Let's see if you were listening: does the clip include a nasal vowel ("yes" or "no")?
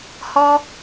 no